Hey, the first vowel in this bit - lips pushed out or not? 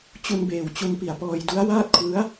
yes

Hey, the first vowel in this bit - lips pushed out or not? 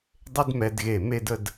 no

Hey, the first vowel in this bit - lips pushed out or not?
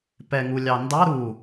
no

